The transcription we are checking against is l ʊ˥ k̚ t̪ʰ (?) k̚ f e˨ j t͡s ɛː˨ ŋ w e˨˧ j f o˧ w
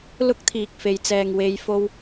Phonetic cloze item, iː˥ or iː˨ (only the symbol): iː˨